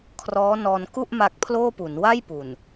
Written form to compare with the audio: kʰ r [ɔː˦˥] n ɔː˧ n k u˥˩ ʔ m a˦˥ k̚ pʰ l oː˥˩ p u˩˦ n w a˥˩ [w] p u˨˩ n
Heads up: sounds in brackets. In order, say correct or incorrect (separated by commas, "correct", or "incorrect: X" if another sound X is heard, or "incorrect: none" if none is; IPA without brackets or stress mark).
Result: correct, incorrect: j